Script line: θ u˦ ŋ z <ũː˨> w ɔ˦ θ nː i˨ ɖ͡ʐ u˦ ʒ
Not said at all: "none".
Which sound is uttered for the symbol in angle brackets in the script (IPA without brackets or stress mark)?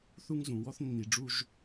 ũ˨